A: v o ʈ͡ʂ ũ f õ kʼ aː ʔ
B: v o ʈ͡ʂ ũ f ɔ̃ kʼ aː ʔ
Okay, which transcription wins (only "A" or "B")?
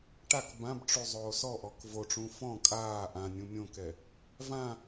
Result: B